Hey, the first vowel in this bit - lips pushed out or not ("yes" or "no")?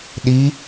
no